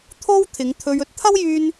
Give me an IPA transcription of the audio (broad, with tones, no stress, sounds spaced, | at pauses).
t̪ʰ o˥ w t̪ʰ ɪ˨˧ ŋ t̪ʰ ɵ˧ ɥ ɵ˥ t̚ t̪ʰ ɐ˥ w j yː˧ n